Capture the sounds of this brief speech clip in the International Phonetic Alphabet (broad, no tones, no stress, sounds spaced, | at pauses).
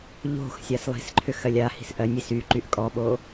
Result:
ʎ o̤ x sʲ a s lˠ i̤ s ǃʰ ʏ x ɜ lʲ a h i̤ s ʔ ɜ nʲ i s y ǃ y ʔ kʼ ɔ ɓ o